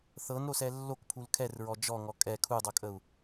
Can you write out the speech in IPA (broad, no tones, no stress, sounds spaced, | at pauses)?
θ ɤ n ɾ o s ɛ lː o k pʰ u l kʰ ɛ r ɹ ɔ d͡ʒ ɔ ŋ ɔ kʼ ɛ kʰ u dˤ ɤ kʼ ə u̯